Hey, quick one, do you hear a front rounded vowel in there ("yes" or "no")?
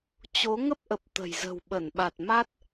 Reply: no